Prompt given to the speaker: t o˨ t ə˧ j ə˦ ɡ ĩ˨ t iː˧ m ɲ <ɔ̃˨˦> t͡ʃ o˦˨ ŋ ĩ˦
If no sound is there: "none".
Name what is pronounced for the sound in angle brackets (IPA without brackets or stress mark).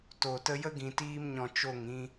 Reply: ɔ̃˨